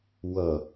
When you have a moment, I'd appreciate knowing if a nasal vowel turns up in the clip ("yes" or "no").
no